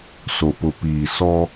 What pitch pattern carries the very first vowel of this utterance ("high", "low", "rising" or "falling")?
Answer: low